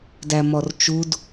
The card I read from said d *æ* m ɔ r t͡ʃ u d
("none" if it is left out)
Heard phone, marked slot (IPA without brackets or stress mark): æ